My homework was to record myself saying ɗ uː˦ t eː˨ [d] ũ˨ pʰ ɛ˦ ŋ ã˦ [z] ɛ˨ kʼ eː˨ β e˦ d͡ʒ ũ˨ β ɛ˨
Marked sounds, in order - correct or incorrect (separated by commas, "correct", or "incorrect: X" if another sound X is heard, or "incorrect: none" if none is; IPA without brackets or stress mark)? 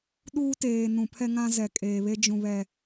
incorrect: n, correct